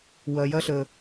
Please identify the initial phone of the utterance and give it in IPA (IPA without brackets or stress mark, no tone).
w